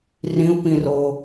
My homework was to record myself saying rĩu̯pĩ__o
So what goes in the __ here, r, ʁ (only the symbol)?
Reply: r